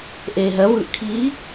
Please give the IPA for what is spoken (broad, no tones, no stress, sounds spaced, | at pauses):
ʔ eː ɦ ɜ v ɯː ʔ kʰ iː